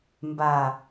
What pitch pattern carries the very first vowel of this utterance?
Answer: low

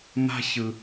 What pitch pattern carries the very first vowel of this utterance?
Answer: high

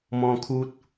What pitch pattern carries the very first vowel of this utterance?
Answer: high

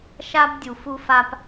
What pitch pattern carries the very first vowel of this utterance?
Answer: high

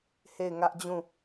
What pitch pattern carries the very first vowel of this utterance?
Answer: falling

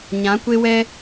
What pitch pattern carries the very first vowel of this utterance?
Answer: rising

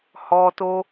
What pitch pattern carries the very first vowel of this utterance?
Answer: high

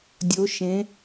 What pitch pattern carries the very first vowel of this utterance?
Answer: rising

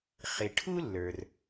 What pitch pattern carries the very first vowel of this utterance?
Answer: low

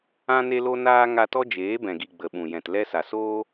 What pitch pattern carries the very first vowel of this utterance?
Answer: high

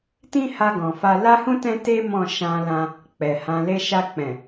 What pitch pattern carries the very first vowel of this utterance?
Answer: high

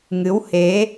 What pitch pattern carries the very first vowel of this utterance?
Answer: rising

